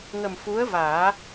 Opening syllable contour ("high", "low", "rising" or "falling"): low